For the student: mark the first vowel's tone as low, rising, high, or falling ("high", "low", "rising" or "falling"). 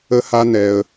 high